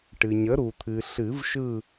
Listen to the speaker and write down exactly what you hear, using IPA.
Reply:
ʈ ɨ˩ ɲ ə˩˥ ɾ u˩ t̪ʰ ɨ˩ ɬ ɨ˨˩˦ v ʃ ɯ˦˨

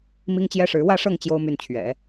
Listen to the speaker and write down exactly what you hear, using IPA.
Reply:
m i˥ ŋ t͡ɕ j ɛ˥ ʂ ɻ̩˧˥ w ä˥˧ ʂ ɤ˥˩ ŋ t͡ɕ j o˥ ʊ̯ m y˥˩ n t͡ɕʰ ɥ ɛ̰˨˩˦

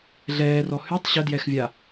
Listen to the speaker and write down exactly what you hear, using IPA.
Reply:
ɮ ɛː r ɔ h y tˤ ɕ ə d j ɛ x vʲ a

